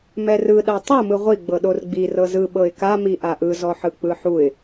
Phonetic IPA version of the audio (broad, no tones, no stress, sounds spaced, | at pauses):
m ɛ r ɯ ɗ a tˤ ɯ m ɯ ʁʷ i ɡ͡b ɤ ɗ o r ɡ͡b i r ɤ z ɯ ɓ ɤ ɪ̯ k a m i ʔ a ʔ ɯ z ɔ ħ ɯ k͡p ɯ ħ u ɪ̯